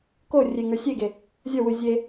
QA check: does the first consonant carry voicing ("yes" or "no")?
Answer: no